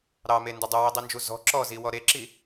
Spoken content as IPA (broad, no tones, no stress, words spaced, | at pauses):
ɾɑmendʊ dˤʊwidˤind͡ʒu zɔ̤ ǁɔziwɔ ɾeǁi